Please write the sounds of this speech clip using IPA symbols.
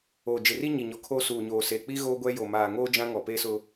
oː˨d͡ʒɪ˨ri˦ ɲi˨ɲɔ˨ kʰo˦suː˨ɲoː˨seː˨ k͡pi˦ ɣoː˦ɡʷɛ˦ jo˨ maː˨ŋoː˦ d͡ʒã˦ŋɔ˨peː˦sʊ˦

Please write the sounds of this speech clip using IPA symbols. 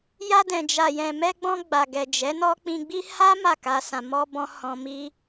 ja˧dɛ̃˨d͡ʒa˨ jɛ̃˨mɛ˧ɡ͡bɔ̃˧ ɡ͡ba˨ɡɛ˨d͡ʒɛ˨˦nɔ˦ k͡pĩ˧ɡ͡bi˦ ha˦ ma˦˨ka˧ sã˨mɔ˧bɔ̃˧ hɔ̃˧mi˦

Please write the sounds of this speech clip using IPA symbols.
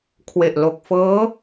kʰwe˨˩ʔlo˨˩k̚ fɤː˦˥

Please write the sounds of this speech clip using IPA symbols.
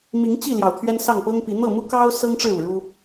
mi˨˦ŋ t͡ɕi˥˨ ljɑ˨˩ʊ̯t̪ʰɥɛ˦n sɑ˥˨ŋpɤ˦ŋpi˨˦ n̪ɤ˥˨mu˦kɑ˦ʊ̯ sɤ˦ŋʈ͡ʂɻ̩˥˨ u˨˩ɻu˦

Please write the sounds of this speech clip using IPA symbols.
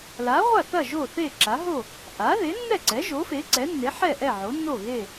la˩˥ʁʷa˥˩θɐ˥˩ ʒo˥˩θe˥˩ǁa˩˥ɦo˥˩ | ʔa˩˥ ðe˩˥nːɛ˥˩ǀɛ˩˥ ʒo˩˥fe˩˥ǀɛ˩˥nːe˩˥ ħɛ˥˩ʔɛ˥˩ ʕo˩˥nːo˥˩ɣe˥˩

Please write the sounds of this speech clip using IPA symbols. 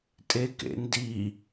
tʼekḛndi

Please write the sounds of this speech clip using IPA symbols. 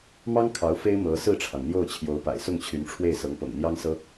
mɑ˥ŋ kʰɑ˧˥ʊ̯fe˥ɪ̯ mɤ˧˥ sɹ̩˥˩ʈ͡ʂʰɑ˩ŋ n̪jo˥˩ʊ̯t͡ɕʰjo˧˥ʊ̯pa̰˨˩ɪ̯ sʊ˥˩ŋt͡ɕʰy˧˥nʈ͡ʂʰwe˥˩ɪ̯ sɤ˧˥ŋpɤ̰˨˩ŋn̪jɑ˥ŋsɤ˥

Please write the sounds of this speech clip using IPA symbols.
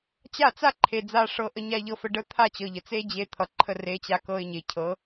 t͡ɕa˦˨t͡sa˦ ǃʰe˨d͡za˧ʂɤ˧ ʔə˦ɲa˦ʎɤ˧fə˧ ɖə˦ t̪ʰa˦˨t͡ɕɤ˨ʎə˨ t͡se˦d͡ʑe˧ t̪ʰʌ˨ǃʰə˦˨re˧ t͡ɕa˧kɤ˧ɪ̯ɲe˨cʰɤ˨˦

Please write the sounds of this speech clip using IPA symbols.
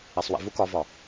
isˤwḭvuk ɒvɒ

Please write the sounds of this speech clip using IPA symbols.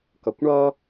kʌkʷɳʌ

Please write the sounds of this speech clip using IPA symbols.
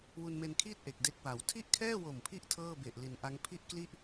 wu˧nme˧nkʰiː˥˩t̚ ʔe˨˩k̚de˦˥k̚wa˩˦w tʰi˥˩ʔkʰɛː˥˩wo˨˩mpʰi˦˥ʔ tʰɤː˥˩be˨˩ʔ li˩˦nʔa˦˥ŋ pʰi˥˩ʔkli˥˩ʔ

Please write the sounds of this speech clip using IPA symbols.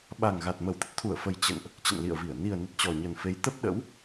ɓa˨˩ŋɣa˨˩t̚ mə˧˩wt̪ə˦˥t̚t̪ʰu˧˩ə̯fə˨˩j t͡ɕə̰˧˨nʔ | t͡ɕə̰˧˨nlḭ˧˨ə̯vi˧˩ə̯ ni˨˩ə̯nə˨˩t̚ t͡ɕɔ˨˩ɲə˨˩nfe˨˦j t̪ə˦˥p̚ɗə̰˧˥w

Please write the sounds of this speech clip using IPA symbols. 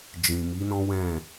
d͡ʒĩ˨mi˨˦nɔ̃˦ wɛ̃˦˨

